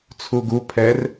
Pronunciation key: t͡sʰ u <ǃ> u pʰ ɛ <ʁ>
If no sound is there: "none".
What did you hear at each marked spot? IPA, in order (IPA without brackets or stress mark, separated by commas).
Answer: ɡ, r